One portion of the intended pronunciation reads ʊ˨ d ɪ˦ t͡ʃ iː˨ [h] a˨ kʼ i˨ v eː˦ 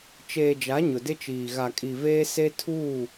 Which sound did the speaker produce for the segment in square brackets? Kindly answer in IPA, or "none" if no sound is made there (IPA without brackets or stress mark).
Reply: ɣ